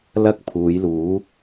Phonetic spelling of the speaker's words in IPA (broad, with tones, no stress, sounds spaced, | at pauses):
l ɐ˥ k̚ pʰ uː˨˧ j l uː˨˥